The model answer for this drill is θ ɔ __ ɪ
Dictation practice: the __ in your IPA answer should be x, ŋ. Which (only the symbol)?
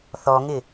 ŋ